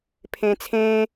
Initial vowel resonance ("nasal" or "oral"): nasal